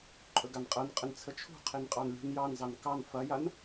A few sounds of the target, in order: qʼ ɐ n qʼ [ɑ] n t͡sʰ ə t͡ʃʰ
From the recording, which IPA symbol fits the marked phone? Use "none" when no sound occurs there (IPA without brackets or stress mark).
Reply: ə